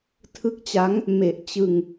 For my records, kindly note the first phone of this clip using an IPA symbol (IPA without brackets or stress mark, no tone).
tʰ